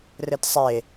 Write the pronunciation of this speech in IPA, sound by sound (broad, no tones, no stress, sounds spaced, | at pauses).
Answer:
r ɘ t sˤ e